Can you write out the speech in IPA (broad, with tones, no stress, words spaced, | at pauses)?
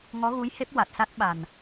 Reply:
ŋɔ˧˥ɣu˧˥jhe˦˥p̚ wa˨˩t̚sa˦˥t̚ɓa˨˩n